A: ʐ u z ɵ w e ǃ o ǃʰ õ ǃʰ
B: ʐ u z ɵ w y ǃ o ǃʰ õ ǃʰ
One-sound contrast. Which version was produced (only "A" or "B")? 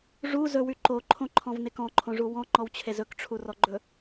B